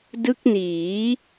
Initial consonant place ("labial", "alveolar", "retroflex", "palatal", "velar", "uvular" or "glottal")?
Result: alveolar